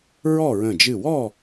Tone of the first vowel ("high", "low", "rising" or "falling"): falling